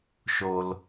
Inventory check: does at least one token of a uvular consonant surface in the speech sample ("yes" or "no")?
no